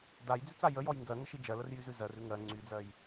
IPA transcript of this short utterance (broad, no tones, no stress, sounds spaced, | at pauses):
d a j d͡z ʉ t͡s a j ə j ɔ j ŋ ɡ ɜ ŋ ə ʃ i d͡ʒ ɜ l ə r j y z ʉ z ɜ r ʉ ŋ ɜ ŋ͡ǀ y d͡z ɜ j